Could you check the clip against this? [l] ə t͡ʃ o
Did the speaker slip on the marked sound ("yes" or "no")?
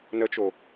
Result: yes